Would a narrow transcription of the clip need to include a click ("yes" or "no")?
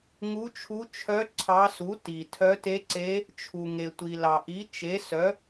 yes